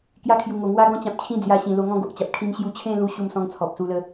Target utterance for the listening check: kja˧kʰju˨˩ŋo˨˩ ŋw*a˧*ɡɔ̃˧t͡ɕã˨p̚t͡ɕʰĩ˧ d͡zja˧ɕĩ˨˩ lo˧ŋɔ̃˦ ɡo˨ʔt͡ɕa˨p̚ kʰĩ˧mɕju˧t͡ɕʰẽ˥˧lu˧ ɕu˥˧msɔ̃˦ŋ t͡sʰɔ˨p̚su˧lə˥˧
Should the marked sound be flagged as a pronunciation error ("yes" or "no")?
no